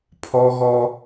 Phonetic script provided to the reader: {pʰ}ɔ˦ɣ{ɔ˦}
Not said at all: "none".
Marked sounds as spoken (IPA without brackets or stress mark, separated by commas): pʰ, ɔ˦